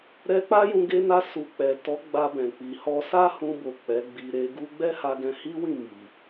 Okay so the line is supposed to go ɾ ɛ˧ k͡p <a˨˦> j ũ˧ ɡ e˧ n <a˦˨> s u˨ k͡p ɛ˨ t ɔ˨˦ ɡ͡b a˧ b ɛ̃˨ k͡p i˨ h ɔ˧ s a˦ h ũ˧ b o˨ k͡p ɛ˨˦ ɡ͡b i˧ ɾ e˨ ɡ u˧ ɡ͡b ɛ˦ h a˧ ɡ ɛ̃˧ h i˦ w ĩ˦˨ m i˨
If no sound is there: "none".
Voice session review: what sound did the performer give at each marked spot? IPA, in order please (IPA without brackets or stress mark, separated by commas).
a˦, a˧